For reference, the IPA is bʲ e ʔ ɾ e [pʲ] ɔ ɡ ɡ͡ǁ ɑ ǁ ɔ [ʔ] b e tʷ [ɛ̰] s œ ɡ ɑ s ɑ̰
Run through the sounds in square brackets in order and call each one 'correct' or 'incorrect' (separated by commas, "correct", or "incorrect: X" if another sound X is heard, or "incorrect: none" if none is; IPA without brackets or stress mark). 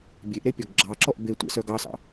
correct, correct, correct